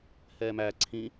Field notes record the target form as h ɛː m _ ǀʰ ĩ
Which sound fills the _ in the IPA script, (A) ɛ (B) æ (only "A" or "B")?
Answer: B